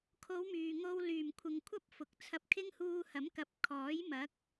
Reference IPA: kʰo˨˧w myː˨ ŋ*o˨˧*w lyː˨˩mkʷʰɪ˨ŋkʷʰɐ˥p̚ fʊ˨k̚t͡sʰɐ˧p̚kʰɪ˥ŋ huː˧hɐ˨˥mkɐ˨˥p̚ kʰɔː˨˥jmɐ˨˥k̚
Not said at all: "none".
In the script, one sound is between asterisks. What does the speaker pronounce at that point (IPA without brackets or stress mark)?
o˧